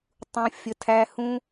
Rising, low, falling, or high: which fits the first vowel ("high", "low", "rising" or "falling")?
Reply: low